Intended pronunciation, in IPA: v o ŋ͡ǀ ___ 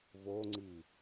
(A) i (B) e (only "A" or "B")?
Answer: A